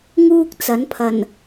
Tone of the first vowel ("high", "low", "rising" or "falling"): high